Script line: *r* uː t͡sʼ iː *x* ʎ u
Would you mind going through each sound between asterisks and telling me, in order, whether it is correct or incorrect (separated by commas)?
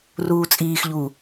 correct, correct